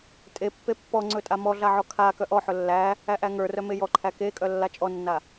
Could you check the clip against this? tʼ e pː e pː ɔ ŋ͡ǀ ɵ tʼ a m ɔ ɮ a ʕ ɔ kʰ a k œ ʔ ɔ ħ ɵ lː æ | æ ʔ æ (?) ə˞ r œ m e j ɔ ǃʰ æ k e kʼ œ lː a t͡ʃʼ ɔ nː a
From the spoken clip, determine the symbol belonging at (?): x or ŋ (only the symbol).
ŋ